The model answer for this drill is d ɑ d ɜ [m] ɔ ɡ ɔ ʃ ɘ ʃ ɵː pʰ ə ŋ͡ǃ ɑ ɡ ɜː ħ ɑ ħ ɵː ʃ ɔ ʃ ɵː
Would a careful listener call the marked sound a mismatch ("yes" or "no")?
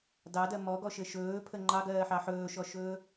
no